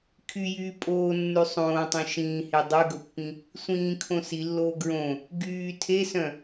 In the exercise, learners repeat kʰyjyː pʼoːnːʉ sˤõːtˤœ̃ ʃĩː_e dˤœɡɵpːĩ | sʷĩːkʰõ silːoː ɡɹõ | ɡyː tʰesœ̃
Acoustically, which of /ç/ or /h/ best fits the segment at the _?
h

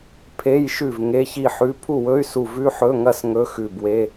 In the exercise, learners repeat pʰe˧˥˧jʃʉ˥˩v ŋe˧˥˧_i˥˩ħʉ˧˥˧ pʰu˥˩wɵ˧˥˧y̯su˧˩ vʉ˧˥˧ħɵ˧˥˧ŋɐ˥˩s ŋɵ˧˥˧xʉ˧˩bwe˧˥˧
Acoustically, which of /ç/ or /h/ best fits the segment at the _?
ç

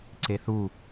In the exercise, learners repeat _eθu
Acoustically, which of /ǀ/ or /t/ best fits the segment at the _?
ǀ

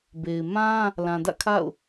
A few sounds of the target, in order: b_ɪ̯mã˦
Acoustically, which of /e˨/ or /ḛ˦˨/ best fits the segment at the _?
e˨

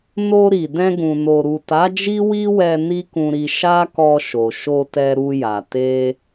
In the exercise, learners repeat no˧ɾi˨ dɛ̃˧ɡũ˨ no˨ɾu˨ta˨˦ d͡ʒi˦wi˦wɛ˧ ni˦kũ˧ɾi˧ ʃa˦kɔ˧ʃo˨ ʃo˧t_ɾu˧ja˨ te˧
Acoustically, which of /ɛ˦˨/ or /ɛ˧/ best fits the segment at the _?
ɛ˧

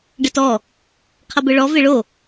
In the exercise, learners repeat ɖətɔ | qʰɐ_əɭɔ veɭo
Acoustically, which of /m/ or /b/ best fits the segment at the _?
b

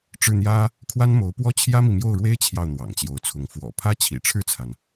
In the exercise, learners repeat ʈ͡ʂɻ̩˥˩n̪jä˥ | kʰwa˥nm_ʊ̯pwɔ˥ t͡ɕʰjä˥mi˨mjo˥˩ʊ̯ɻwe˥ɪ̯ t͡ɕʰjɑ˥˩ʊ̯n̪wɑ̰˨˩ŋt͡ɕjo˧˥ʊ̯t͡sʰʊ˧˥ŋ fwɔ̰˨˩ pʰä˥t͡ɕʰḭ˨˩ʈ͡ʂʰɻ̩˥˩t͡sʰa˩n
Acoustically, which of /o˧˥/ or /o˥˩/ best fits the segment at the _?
o˧˥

